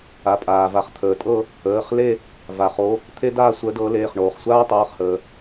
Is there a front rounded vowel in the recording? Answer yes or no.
no